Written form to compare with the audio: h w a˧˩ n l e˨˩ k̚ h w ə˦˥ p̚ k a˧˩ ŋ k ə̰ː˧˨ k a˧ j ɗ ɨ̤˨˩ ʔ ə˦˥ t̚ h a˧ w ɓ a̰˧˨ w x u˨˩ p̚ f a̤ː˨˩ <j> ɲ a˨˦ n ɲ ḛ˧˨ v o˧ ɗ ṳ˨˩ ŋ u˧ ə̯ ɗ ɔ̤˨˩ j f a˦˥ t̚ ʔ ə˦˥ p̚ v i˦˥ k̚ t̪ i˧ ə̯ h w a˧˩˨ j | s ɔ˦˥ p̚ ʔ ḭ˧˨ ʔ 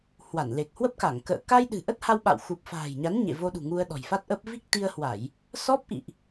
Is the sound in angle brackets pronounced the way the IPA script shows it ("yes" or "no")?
yes